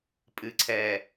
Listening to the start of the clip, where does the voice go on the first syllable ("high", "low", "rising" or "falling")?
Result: low